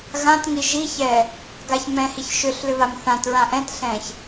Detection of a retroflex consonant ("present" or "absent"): absent